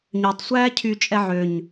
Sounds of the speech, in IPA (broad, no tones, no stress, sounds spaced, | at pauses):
ɲ ø tˤ sʷ æː cʰ y t͡ʃʼ ɛ ʕ ø ɲ